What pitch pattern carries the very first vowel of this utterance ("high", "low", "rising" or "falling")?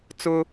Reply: high